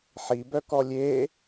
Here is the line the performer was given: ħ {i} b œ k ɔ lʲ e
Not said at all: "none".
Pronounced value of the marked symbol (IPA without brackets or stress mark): i